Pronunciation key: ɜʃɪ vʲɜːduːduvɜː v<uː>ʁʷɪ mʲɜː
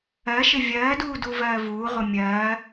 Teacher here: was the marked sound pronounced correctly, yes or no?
yes